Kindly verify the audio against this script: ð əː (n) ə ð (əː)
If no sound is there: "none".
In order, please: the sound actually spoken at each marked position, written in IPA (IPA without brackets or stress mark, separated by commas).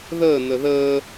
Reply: n, əː